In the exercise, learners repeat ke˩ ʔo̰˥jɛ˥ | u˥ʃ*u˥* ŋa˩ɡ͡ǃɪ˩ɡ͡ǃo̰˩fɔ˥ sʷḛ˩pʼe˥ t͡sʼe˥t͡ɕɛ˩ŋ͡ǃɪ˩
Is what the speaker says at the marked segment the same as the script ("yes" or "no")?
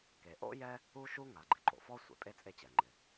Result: yes